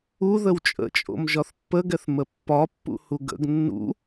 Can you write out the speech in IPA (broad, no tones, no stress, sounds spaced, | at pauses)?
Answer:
u ð ə w t͡ʃʼ ə̰ t͡ʃʼ o̰ m ʒ ɒ θ pː ə ɡ ɛ θ m ə pː ɒ pː ṵ h u ɡ ə̰ ɡ nː ṵ